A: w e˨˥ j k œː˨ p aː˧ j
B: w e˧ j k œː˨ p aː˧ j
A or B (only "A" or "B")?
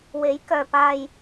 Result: A